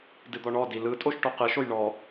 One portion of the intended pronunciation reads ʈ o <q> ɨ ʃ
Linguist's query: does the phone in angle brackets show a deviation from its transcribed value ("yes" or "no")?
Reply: no